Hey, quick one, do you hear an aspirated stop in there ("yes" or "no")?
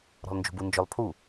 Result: yes